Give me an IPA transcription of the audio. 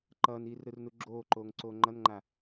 ǃʌːniːrɾɯrnu ɡ͡ǁoːǃoːŋǀoː ŋ͡ǃʌnŋ͡ǃa

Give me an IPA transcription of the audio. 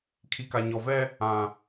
kʰi˨ka˨ɲɔ˨vɛ˦ | ã˨

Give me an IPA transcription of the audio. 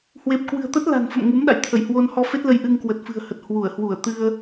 hwe˨˩p̚kwɨ̤˨˩ə̯t̪ə˦˥t̚ la̤˨˩nfə̰˧˨m ŋu˨˦mɗa̰˧˨jt̪ʰə˧˩jhwo˧n hɔ˧fe˦˥t̚lə˧j ʔɨ˧ŋkwə˨˩t̚fɨ̤˨˩ə̯hə˨˩t̚ hwu˧˩ə̯hwu˧˩ə̯ t̪ɨ˧ə̯

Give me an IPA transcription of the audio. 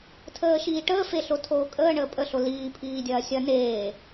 tʰəːʃiːʈəː feɬotʰoːkʼəː ɳəːpʼə ɬoliː pʰiːdʲɐːsʲɐ neː

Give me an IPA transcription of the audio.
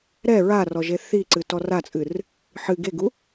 ɾɛ ɹarɔ ʒeθiǀɨ tɔrat͡sʼɨr | ħɨ ɡeɡu

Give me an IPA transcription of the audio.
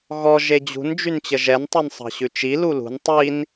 ɣɔ ʒed͡ʑṳn d͡ʒynt͡ɕəʒɛn tˤinsˤɑ̤ɕʉt͡ʃi lulṳn tˤin

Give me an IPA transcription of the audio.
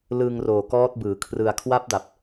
lɯː˧ŋroː˨˩kɔː˦˥t̚ bɯː˩˦kʰrɯ˧a̯ kʰwa˦˥p̚da˨˩p̚

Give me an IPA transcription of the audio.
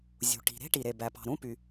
zʲṳ˩ʈi̤˩ ɾe̤˥ ʈi˩ɾe˩ bæ˩ pɑ̤˩ɾũ˦py˩

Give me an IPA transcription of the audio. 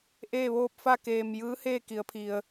ʔeː˥˨ʋoː˥˨p̚ fa˥˨keː˧˩m jɯː˧˥heː˥˨ki˩˧ə̯pʰi˩ə̯

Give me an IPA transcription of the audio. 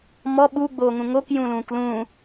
mɔ ɓuɡ͡boːŋũ ŋokjũlũːk lũː

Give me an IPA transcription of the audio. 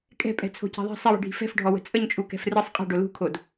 kʼɛ̤pʼɛ̤ t͡sʰo̤cɛ̤ðˤɛ̤ sˤiwi̤ɖʱi̤ fɛ̤fɖʱɔwə̤ t͡sʼəɲt͡ʃʼukɛ̤f rɯsˤ qʼɛ̤ɖo lṳkʰod

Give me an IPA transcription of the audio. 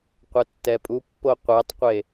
qʷɛtːɛpʼupːo qʷɛtˤqʷe

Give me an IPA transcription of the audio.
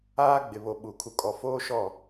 aː˦ ɡ͡bɪ˨βo˨ ɓu˨ kʰu˨kʼɔ˨foː˦ʃɔ˦˨

